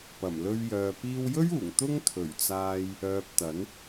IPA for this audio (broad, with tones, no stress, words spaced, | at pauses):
pɐ˨˩mlɵ˧ɥjœː˨ piː˧wjɵ˥ɥuː˨˩ŋ t̪ʊ˥ŋ t̪ʰɵ˨˩ɥt͡saː˧j | œː˨p̚ t̪ɐ˨˥n